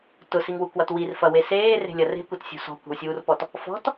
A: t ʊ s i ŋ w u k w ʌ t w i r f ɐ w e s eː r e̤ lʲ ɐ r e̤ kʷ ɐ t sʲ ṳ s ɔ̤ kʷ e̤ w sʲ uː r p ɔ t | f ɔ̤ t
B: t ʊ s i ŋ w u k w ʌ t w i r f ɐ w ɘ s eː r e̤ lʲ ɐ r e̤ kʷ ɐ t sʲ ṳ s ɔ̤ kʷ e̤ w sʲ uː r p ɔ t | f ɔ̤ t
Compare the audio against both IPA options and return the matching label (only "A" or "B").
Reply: A